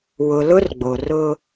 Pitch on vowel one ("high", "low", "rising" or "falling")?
low